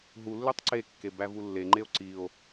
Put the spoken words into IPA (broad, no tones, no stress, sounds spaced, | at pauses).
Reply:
ɦ u lː ø tˤ ǀ e kː e b æ v u lː e ŋ͡ǃ e o̯ ǀ i o̯